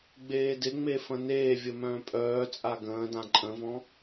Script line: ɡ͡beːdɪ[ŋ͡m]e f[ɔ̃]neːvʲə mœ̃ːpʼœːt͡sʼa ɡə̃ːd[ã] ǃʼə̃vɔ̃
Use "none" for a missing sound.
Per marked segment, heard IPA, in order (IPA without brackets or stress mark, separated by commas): ŋ͡m, ə̃, ã